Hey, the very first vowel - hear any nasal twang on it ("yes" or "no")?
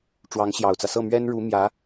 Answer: no